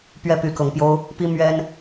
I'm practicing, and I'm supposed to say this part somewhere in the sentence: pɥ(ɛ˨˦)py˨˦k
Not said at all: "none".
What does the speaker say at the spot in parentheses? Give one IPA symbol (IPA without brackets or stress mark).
ɛ˦